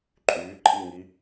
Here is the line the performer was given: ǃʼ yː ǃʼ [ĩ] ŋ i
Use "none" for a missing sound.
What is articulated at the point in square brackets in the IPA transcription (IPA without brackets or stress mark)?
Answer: i